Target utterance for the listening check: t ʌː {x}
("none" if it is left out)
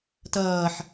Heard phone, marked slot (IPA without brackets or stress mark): ħ